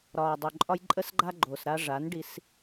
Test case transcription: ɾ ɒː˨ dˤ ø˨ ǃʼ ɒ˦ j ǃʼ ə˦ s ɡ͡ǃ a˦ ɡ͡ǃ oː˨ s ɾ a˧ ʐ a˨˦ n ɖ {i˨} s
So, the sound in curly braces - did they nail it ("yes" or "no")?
no